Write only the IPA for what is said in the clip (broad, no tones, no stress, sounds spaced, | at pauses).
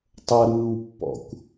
tˤ ʌ ɾ ɯː w pː ɔ̰ kʷ